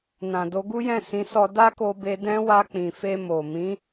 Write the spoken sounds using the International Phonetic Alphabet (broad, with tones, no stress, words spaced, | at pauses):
nã˨ do˧ɡu˦jɛ̃˦˨ sĩ˨˦sɔ˧ da˦ko˧be˧ dɛ̃˦ wa˧k͡pĩ˨fe˧ mo˨ mĩ˨˦